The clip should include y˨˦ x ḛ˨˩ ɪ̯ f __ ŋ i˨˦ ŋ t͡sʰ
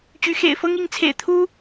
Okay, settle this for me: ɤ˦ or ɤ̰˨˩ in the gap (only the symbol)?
ɤ˦